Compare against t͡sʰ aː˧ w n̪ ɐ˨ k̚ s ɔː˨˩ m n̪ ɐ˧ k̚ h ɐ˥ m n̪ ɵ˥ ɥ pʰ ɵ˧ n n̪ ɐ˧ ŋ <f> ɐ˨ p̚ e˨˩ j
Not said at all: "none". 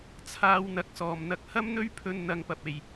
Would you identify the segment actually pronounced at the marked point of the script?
p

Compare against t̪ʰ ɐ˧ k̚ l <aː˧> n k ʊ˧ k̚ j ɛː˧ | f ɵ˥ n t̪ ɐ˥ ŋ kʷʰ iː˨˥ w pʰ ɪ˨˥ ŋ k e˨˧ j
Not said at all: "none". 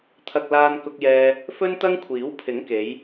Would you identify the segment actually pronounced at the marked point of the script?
aː˧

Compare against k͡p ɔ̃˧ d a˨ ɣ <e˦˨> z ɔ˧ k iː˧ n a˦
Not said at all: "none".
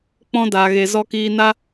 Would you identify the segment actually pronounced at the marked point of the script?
e˨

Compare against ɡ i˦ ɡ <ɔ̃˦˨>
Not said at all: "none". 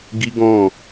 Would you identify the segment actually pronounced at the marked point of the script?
ɔ̃˦˨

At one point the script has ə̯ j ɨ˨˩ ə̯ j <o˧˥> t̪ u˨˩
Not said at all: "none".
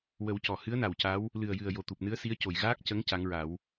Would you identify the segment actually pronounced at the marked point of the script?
o˨˩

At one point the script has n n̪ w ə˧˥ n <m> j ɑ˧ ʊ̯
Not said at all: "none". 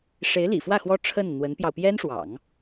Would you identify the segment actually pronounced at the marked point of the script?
p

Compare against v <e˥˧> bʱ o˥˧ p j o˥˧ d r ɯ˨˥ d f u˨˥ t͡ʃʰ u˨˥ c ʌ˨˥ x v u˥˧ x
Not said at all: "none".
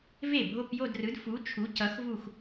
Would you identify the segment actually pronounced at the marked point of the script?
e˥˩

